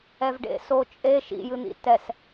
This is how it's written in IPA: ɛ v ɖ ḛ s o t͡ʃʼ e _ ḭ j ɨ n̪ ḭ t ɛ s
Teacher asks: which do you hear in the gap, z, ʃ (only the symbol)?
ʃ